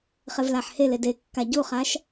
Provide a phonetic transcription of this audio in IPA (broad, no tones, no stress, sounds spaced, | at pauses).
χ e v l a ħ h e l e d e kː a ɟ u χ a ʃ